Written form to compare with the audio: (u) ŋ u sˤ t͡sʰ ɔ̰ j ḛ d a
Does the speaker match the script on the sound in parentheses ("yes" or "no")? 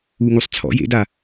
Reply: yes